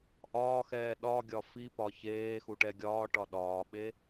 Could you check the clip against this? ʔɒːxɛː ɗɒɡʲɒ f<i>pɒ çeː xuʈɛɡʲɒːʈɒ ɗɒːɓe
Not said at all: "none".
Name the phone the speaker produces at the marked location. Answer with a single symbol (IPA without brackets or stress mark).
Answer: i